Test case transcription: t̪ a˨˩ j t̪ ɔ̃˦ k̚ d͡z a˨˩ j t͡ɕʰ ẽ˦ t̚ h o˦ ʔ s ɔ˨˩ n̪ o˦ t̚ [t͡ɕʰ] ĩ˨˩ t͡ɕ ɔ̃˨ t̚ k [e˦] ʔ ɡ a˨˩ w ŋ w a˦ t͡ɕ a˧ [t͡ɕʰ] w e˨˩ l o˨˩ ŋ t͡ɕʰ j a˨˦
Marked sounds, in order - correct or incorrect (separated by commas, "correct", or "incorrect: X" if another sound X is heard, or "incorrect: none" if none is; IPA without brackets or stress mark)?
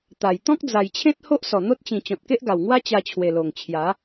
incorrect: t͡ɕ, correct, correct